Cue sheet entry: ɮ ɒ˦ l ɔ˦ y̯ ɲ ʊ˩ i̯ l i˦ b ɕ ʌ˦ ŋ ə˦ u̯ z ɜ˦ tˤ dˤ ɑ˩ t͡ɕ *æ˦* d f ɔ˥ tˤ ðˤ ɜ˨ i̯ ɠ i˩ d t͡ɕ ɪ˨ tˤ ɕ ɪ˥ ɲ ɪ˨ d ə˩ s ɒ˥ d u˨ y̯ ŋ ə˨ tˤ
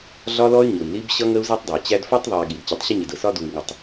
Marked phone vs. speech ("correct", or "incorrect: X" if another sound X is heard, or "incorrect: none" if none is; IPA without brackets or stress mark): correct